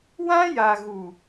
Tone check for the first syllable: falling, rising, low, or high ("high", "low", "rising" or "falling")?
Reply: high